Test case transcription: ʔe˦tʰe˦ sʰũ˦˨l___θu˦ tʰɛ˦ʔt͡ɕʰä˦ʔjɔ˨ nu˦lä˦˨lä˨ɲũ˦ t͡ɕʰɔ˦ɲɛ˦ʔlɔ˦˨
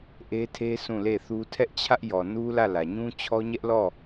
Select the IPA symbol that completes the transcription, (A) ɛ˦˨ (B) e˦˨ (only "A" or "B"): B